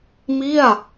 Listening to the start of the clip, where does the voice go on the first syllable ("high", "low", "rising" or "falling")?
falling